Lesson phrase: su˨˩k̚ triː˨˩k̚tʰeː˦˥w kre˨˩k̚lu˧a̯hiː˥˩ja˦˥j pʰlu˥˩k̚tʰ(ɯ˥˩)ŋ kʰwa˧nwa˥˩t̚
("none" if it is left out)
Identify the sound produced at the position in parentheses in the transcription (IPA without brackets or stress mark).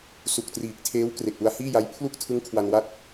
ɯ˦˥